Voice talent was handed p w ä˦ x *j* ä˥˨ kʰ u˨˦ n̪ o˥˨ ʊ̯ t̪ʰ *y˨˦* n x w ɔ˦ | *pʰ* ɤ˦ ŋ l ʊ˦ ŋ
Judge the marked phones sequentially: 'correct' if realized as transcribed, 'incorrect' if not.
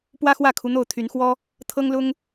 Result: incorrect: w, correct, incorrect: t̪ʰ

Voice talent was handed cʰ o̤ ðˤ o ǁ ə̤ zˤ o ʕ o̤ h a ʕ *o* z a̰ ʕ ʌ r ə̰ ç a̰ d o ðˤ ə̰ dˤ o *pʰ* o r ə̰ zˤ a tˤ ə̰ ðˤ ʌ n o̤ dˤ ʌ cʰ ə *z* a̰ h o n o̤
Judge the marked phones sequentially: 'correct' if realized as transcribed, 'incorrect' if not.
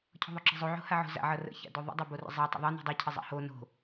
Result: incorrect: o̤, incorrect: b, incorrect: zˤ

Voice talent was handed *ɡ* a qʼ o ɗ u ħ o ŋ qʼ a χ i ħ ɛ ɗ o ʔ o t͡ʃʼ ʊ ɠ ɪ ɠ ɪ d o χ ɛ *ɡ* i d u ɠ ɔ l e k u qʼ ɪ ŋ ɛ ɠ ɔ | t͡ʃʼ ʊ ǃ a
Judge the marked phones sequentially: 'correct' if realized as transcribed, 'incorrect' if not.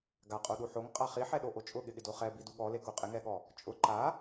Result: correct, incorrect: b

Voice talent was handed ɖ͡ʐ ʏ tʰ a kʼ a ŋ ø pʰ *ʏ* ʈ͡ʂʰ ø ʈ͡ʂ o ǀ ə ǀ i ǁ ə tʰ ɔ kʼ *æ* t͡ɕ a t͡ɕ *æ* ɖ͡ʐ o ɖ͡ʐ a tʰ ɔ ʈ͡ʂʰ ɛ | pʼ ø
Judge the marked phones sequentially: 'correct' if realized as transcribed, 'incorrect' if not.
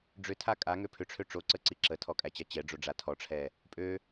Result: correct, correct, incorrect: ɛ

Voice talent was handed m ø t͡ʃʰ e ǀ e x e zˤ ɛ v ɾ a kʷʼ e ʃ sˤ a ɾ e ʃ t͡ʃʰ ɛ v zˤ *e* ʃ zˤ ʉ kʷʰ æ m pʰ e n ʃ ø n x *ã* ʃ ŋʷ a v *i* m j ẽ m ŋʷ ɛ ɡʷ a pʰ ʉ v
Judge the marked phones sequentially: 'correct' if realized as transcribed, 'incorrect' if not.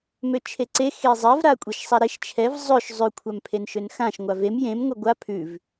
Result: incorrect: ø, correct, incorrect: e

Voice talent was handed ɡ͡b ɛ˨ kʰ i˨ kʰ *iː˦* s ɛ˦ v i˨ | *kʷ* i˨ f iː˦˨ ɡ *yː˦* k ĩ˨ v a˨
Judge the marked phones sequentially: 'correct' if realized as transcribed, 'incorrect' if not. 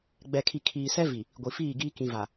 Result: incorrect: iː˨, incorrect: ɡʷ, incorrect: iː˦

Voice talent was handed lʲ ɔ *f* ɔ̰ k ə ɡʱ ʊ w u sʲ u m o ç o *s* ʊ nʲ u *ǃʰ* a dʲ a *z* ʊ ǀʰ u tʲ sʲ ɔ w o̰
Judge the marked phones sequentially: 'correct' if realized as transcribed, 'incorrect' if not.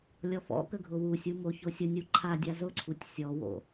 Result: correct, incorrect: sʲ, correct, correct

